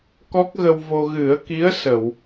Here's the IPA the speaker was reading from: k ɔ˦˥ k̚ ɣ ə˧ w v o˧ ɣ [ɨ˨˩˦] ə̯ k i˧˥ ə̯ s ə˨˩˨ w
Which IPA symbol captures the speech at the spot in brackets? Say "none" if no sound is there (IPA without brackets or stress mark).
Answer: ɨ˨˩˦